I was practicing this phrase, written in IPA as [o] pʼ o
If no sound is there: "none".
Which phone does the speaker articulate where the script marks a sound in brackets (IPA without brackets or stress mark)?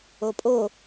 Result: o